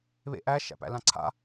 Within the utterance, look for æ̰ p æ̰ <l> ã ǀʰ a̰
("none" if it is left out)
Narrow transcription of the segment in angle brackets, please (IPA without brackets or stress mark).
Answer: l